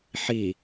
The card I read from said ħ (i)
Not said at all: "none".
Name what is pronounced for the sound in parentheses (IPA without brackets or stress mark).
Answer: i